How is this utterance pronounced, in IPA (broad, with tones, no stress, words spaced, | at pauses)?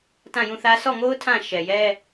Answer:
tã˦˨jũ˦˨θä˦ sɔ˦˨ŋo˦ʊ̯ tʰã˦˨ ʃɛ˨jɛ˦